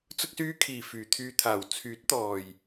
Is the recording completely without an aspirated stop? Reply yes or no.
no